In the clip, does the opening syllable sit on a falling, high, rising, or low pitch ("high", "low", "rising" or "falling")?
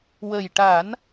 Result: low